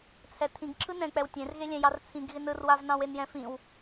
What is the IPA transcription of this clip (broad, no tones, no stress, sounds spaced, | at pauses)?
t͡sʰ ɛ tʰ ĩ ɡ ǁʰ ɯ n ɛ̃ k͡p ɛ w tʲ ẽ r ɣ e lʲ ɛ̃ j ɑ r t͡sʰ ĩ ɡ ɣ ɪ n ɯ r w a v n ɑ̃ w e n j ɛ̃ f ĩ w